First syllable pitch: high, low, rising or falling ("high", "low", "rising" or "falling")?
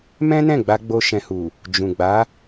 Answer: high